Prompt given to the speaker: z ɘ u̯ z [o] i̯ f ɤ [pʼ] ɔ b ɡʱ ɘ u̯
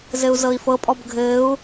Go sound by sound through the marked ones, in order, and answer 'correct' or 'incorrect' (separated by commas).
incorrect, correct